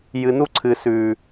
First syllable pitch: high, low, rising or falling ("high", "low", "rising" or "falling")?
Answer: low